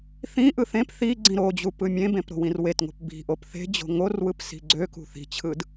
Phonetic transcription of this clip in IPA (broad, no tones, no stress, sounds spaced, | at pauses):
θ ĩ ʔ ɯ θ ẽ p θ i ɡ͡ǀ ĩ ɾ o d͡ʑ u p ɯ mʲ ẽ b ẽ p ɾ o̤ w ĩ r w e t ŋ o̤ p b i̤ ʔ o p θ e̤ d͡ʑ o̤ ŋ o r w ɯ p s i̤ ɡ͡ǀ ø k ṳ θ i̤ t͡ɕʰ ɯ d